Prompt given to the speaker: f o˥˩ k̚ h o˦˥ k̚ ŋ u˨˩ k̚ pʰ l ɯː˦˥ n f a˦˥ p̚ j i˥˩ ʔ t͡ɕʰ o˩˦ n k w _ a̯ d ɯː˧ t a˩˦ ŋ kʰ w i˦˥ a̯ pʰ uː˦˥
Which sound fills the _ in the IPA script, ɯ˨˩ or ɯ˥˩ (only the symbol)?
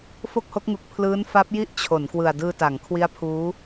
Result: ɯ˨˩